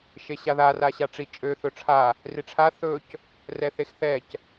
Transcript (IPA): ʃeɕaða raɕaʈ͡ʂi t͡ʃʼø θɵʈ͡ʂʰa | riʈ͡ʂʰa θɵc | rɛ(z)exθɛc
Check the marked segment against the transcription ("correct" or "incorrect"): incorrect